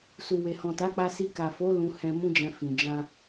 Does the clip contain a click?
no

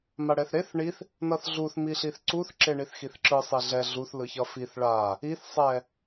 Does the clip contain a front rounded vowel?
no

